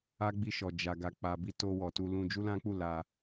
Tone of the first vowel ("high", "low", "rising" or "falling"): high